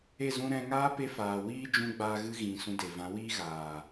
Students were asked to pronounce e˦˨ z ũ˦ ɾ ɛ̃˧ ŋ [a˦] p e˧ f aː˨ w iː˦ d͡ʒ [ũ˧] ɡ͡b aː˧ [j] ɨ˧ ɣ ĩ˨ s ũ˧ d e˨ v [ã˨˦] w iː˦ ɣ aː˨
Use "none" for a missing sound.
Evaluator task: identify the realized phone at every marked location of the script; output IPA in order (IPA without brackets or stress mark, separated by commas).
aː˦, ũ˧, ɣ, ã˨˦